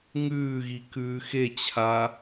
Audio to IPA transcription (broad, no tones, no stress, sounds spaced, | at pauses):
ŋ ʉː ɣ i k ʉː x e t͡ɕʰ a